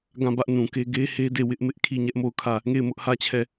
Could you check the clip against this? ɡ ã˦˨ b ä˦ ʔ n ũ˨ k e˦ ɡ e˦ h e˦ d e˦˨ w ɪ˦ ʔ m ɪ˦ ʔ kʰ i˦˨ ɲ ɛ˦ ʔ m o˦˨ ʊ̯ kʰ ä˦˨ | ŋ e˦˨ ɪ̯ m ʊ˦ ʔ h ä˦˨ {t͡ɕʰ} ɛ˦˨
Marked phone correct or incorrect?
correct